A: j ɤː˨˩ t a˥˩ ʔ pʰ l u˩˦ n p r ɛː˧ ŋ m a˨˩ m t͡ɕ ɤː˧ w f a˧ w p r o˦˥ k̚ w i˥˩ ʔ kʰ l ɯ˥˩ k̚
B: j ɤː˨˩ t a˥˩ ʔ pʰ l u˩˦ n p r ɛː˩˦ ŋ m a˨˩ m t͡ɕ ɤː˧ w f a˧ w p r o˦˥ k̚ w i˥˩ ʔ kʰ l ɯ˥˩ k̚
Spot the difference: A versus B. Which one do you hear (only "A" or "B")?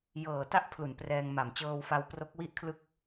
A